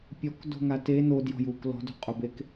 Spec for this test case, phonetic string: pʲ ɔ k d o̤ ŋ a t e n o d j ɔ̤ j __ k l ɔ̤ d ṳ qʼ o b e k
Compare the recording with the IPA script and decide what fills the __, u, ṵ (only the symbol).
u